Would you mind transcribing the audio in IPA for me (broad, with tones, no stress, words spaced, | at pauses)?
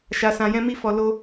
ʃa˧sã˧jɛ̃˦ mi˦fɔ˧lo˦